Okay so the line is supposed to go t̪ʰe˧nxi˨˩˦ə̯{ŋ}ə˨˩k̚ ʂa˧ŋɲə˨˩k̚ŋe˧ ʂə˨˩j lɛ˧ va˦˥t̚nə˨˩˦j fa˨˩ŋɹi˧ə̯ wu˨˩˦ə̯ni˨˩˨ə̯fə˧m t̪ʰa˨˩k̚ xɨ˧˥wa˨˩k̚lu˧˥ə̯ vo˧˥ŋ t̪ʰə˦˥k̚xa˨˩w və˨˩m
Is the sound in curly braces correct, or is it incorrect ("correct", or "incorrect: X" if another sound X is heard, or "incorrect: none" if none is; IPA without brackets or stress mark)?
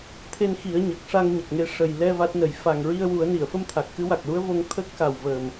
incorrect: ɲ